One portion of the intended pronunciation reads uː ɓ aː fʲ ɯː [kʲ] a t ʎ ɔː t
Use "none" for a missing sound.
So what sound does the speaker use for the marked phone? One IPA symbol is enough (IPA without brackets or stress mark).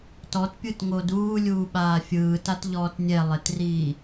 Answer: t